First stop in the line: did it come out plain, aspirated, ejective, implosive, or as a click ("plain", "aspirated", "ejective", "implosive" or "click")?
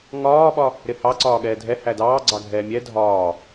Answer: implosive